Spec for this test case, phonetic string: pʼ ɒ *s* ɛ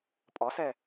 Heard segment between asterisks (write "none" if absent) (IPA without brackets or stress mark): s